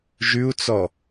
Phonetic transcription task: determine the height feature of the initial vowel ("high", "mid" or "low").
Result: high